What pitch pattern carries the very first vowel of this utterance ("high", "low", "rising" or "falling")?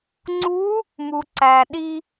rising